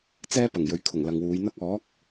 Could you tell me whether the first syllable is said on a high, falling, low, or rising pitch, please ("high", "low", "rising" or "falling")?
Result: high